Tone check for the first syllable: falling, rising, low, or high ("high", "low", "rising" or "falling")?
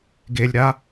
low